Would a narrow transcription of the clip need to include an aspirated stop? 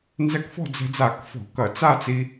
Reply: no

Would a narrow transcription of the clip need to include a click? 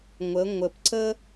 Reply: yes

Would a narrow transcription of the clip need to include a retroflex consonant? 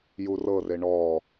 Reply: yes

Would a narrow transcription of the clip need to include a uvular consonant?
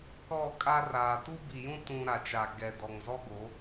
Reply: no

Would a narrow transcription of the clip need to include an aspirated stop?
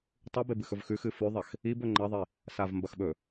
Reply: no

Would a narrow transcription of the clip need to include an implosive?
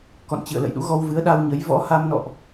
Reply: yes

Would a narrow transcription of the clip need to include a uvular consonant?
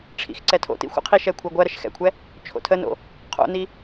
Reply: yes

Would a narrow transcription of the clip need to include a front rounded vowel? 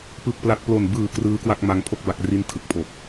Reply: no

